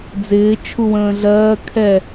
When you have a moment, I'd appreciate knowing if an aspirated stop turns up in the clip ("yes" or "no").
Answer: yes